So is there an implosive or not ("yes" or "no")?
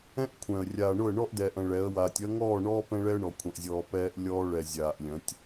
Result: no